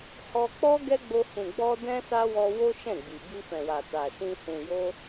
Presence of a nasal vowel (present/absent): present